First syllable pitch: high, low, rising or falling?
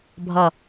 falling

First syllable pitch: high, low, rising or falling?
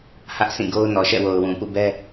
high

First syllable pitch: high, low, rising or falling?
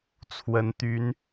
rising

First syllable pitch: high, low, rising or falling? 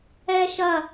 high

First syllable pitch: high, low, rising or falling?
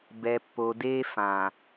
low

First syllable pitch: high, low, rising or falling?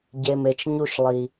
low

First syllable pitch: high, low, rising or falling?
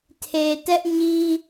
low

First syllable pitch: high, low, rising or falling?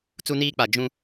high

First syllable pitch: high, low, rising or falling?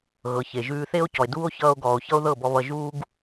low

